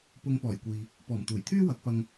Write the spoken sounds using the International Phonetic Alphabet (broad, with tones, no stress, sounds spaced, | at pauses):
p ʊ˧ ŋ p ɔː˨˩ j kʷ iː˨ | p ɔː˨˩ m t̪ uː˨˩ j t̪ʰ yː˥ w ɐ˨˥ k̚ p ɐ˧ ŋ